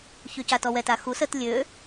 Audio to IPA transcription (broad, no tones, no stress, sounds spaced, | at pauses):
ç y c a t ɔ w ɛ t a x u s ə t lʲ ø